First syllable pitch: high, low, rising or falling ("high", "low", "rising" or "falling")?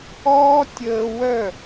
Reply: high